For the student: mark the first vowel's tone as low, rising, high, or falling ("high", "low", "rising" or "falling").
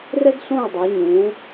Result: high